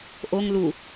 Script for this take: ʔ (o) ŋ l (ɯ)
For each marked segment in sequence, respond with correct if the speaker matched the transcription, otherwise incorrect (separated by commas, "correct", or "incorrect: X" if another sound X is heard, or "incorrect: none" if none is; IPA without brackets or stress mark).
correct, incorrect: u